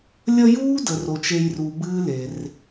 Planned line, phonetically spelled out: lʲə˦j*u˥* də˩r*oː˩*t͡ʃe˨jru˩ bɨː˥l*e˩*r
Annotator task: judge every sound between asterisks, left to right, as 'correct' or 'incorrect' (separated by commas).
incorrect, incorrect, correct